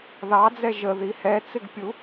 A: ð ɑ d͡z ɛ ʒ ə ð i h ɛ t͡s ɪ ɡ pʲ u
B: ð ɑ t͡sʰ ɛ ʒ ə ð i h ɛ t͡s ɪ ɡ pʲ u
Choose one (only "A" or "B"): A